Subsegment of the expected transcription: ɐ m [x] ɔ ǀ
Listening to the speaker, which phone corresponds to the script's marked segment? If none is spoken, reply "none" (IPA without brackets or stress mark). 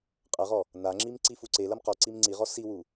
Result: q